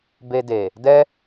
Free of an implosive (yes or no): yes